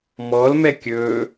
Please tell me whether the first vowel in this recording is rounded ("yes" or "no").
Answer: yes